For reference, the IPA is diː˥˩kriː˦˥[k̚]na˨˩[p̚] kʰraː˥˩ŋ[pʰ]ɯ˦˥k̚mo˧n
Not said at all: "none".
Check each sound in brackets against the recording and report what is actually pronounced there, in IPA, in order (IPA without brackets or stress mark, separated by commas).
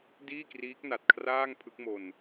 k̚, t̚, pʰ